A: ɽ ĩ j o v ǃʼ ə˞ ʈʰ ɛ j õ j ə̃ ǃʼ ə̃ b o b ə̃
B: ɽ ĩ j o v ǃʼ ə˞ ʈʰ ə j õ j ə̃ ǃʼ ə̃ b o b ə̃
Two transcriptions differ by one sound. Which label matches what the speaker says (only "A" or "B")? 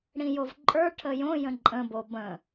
B